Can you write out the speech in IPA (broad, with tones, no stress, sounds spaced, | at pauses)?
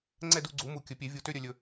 ŋ͡ǀ ɛ˥˨ d u˥˨ ɡ͡ǀ u˩˥ m u˧˩ kʲ ɵ˩˥ pʲ e˩˥ vʲ u˧˩ t ø˥˨ ɾʲ œ˥˨ lʲ ɵ˧